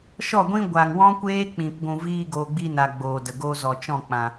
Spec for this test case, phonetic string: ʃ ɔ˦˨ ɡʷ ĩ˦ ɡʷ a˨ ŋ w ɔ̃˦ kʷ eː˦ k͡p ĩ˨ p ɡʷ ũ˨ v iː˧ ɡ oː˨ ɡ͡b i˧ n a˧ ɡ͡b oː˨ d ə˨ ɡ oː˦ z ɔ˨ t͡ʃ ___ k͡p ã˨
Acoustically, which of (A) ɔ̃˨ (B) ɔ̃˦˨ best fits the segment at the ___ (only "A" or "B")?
B